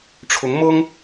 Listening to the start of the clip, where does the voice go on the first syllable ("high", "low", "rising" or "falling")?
rising